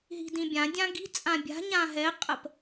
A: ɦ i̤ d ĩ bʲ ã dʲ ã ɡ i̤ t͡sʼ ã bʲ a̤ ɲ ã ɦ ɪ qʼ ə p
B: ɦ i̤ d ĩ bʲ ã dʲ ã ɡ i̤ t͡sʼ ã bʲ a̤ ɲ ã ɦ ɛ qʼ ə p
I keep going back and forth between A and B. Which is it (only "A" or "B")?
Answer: B